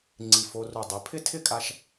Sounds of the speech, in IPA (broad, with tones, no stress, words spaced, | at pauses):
ŋ͡ǀi˧˩fo˧ru˧˩ dˤe˩˧pʰɪ˥˧tʰɪ˥˧kʼa˧ʃ